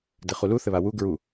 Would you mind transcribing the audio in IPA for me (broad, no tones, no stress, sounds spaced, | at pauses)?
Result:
d ɘ χ u l u θ ɘ β a w u ɡ ɹ u